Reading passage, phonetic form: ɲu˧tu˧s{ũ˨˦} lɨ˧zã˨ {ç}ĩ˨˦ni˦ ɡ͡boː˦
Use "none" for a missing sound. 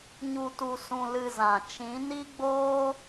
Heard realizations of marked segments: ũ˧, t͡ʃ

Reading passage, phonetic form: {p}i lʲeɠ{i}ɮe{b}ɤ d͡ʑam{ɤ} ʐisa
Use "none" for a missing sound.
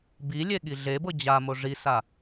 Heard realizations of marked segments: b, i, b, o

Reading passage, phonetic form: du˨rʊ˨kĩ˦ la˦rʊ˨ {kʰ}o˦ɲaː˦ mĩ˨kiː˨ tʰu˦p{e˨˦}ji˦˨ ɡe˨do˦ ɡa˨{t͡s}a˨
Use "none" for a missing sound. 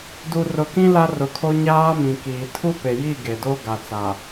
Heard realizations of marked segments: kʰ, e˨, t͡s

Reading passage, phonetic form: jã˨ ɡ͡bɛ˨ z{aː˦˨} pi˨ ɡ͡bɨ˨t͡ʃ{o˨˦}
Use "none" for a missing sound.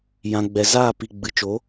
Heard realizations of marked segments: aː˦˨, o˨˦

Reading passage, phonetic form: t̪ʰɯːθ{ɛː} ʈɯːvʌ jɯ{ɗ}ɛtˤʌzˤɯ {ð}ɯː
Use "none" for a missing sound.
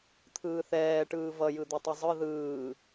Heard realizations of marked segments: ɛː, d̪, ð

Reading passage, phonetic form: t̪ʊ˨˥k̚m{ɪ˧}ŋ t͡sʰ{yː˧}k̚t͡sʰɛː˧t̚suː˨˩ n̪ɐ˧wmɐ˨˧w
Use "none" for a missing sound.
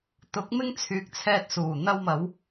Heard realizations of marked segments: ɪ˥, yː˨

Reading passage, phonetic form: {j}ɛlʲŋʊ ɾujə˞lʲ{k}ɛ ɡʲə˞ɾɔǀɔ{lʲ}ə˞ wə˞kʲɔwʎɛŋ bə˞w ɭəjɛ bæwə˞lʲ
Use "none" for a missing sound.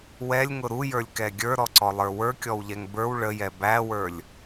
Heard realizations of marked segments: w, k, lˠ

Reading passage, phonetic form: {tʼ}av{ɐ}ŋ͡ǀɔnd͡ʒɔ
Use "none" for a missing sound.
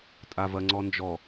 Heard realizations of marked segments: tʼ, ɐ

